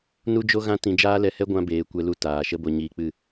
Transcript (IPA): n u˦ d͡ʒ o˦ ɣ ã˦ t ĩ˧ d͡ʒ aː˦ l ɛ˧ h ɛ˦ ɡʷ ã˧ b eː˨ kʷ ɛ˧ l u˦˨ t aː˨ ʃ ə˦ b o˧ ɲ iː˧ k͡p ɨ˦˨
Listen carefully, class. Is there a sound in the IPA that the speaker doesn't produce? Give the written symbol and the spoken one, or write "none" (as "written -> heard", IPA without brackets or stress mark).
none